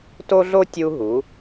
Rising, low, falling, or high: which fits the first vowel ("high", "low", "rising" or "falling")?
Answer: high